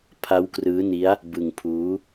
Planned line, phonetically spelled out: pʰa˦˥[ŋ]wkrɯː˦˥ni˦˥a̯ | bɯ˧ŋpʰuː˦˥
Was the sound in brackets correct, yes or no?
no